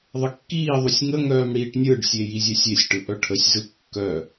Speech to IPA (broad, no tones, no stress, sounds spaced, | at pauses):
ðˤ ə kː iː ðˤ u sʲ ŋ ə ŋ œː m ɽ iː ʈ nʲ ɯ ɖ sʲ e j i zʲ œ sʲ e sʲ ʈ ɯ ʔ œ ʈʰ ə sʲ z ɯ kː œ